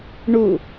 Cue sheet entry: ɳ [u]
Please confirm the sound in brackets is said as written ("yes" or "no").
yes